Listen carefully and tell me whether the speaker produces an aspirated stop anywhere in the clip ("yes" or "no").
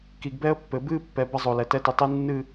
no